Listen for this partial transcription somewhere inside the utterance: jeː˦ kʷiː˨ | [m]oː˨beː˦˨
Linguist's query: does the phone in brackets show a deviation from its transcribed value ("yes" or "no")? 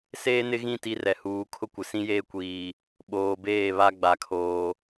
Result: yes